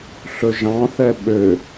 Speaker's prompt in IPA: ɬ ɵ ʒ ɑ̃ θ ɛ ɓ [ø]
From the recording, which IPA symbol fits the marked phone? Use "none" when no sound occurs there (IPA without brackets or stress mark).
ø